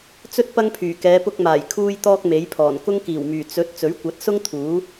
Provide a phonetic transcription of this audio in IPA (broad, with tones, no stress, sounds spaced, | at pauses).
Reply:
t͡s ɵ˥ t̚ p ɐ˥ ŋ pʰ yː˨˩ k ɛː˨˧ p ʊ˧ k̚ m aː˨˩ j kʰ uː˧ j t̪ ɔː˧ k̚ m e˨˥ j pʰ ɔː˨˩ n k ʊ˥ ŋ k iː˨˩ w m yː˨˩ t͡s ɵ˨˥ t̚ t͡s ɵ˨˥ ɥ kʷ ɐ˨˥ t̚ s ʊ˥ ŋ t̪ʰ uː˨˥